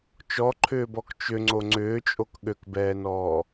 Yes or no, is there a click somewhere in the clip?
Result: yes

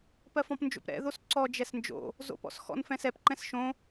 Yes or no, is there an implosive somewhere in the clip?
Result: no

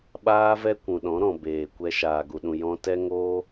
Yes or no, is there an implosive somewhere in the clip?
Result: yes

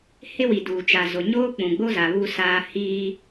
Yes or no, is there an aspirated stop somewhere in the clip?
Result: no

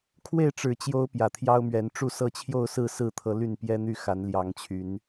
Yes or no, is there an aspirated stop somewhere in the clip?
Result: yes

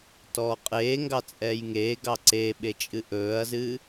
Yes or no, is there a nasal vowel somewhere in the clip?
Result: no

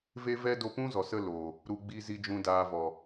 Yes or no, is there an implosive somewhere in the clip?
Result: no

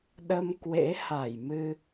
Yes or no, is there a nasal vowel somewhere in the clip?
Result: no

